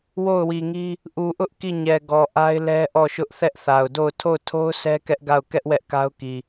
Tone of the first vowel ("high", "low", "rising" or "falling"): falling